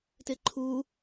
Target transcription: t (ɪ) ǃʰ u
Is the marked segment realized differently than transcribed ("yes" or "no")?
no